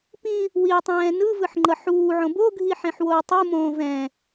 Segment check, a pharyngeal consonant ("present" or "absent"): present